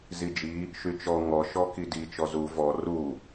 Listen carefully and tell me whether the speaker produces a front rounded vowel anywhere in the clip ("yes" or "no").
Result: yes